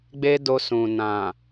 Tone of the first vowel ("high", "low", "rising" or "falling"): high